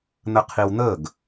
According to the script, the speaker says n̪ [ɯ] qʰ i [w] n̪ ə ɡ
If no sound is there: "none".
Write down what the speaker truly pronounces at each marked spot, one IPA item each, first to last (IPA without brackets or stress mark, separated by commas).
ə, w